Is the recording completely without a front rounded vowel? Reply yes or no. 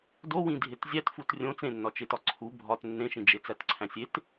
yes